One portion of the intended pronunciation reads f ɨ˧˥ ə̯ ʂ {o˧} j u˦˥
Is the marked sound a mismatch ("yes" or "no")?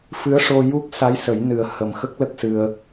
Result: no